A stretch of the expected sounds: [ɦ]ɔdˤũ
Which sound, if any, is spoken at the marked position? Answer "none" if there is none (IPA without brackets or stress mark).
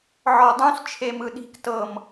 ʕ